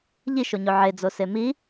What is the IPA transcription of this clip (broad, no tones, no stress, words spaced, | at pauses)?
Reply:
ʎiʃoɲo ʕed͡zose mi